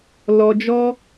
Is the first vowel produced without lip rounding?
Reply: no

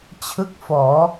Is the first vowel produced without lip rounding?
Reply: yes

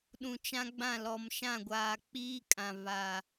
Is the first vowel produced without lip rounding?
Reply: no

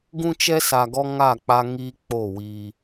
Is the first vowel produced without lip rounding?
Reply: no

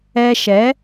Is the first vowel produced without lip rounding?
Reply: yes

